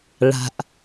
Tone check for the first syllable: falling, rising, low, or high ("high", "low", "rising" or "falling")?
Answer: low